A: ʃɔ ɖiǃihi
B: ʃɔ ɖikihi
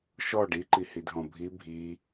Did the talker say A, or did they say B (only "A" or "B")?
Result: A